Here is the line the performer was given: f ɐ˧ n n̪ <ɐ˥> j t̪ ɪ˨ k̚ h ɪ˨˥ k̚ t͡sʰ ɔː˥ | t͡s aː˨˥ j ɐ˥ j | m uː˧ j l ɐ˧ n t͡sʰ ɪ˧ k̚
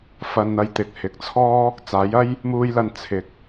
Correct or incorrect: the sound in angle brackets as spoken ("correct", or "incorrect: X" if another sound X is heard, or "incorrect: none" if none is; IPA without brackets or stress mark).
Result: incorrect: ɐ˧